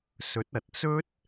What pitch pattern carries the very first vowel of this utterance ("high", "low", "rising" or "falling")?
rising